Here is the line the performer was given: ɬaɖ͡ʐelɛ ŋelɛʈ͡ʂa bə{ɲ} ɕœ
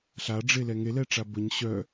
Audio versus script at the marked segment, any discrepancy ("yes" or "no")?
no